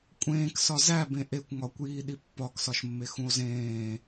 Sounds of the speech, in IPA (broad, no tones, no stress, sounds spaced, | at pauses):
kʷʼ ẽː k s ɒ z æ b ẽ ʔ e kʷ ŋ ɒ kʷ j iː ɗ i pː ɒ k s ɒ ʃ mː e x ũ o̯ z ẽː